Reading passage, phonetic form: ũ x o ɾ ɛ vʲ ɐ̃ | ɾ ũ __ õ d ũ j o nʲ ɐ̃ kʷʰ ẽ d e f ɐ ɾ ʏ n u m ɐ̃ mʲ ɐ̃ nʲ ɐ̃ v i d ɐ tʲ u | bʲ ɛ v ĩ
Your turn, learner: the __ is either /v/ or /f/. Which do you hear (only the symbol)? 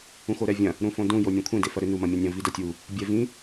f